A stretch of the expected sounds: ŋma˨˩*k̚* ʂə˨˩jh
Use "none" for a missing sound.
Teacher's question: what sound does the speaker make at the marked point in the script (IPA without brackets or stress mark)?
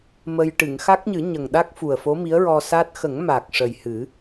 k̚